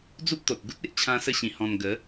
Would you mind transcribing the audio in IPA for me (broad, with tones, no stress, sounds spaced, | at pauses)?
d͡z u˦ p̚ t̪ o˨ t̚ ɡ u˦ t̚ e˨ ʔ t͡ɕʰ ã˦ s ə˥˧ ɕ ĩ˧ h ɔ̃˧ n ɡ ə˨˦